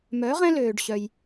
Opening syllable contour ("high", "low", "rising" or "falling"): rising